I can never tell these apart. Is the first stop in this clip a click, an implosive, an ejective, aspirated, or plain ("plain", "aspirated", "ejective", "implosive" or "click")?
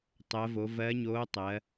plain